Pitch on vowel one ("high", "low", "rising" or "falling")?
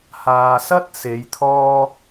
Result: low